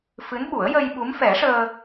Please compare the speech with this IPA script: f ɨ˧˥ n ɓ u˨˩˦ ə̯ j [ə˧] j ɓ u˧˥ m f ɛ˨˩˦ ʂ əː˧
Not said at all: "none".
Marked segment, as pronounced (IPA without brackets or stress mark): ə˧